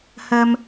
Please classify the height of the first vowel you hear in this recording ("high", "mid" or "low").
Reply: mid